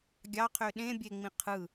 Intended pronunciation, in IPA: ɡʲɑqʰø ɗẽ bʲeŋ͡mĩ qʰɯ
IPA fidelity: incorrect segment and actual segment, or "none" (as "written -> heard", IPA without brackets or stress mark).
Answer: none